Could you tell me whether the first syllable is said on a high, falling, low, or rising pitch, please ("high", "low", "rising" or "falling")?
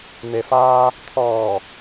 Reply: low